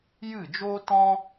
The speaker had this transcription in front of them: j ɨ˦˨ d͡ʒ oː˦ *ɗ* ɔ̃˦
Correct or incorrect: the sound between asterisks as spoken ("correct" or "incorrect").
incorrect